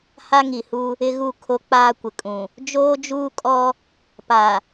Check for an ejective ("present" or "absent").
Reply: present